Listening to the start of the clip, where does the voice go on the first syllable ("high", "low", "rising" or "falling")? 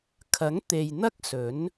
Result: rising